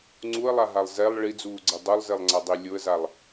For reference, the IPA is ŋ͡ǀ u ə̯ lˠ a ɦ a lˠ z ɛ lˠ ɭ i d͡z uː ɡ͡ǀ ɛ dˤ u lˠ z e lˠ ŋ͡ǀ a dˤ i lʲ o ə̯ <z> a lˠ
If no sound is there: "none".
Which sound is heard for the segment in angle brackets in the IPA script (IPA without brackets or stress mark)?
z